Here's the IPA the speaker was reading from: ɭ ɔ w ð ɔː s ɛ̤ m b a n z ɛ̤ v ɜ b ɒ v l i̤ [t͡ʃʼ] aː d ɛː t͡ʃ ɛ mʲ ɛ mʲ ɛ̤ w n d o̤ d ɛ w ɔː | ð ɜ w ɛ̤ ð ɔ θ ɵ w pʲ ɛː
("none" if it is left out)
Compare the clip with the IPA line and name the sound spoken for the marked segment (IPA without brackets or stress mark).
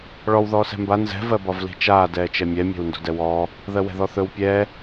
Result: t͡ʃ